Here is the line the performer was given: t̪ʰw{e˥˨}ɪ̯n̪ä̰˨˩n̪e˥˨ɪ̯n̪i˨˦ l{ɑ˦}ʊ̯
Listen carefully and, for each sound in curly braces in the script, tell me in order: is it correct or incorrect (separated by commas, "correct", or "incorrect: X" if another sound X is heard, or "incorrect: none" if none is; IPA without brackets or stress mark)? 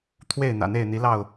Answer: correct, incorrect: ɑ˥˨